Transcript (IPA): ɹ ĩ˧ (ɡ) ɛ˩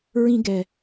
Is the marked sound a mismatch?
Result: no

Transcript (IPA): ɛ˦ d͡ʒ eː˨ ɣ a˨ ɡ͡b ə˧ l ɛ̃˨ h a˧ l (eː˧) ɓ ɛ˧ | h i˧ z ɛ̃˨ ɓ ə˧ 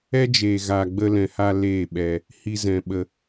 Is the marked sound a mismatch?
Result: yes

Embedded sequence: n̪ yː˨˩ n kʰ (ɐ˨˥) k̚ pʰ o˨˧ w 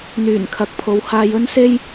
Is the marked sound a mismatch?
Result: yes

